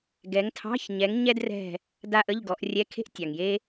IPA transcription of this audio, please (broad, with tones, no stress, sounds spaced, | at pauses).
ɡ ɛ˨˦ ŋ tʰ ɑ̤˧˥˧ ç ɲ ɛ˨˦ ŋ ɲ ɛ˥ d r ɛ̤˦˨ | d a˥ ʔ ə˧˥˧ ʎ ɡ ɔ˨˦ ʔ rʲ ɛ˧˥˧ kʰ e̤˥ ʔ tʲ ɑ˩ ŋ j e˥